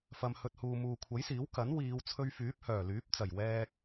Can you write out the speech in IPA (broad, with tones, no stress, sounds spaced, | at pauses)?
f ɐ˨ m h ɵ˨ t̚ h uː˨ m uː˨ kʷʰ ɐ˨˥ j s iː˨˥ w k ɐ˨˥ n w iː˨˧ w t͡sʰ ɵ˧ ɥ f yː˨˥ p̚ h œː˨˩ l yː˨˥ p̚ t͡s ɐ˨˩ j w ɛː˧ k̚